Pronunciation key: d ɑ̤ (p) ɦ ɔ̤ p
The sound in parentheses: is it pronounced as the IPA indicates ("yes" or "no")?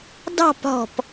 yes